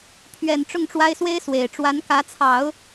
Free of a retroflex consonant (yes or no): no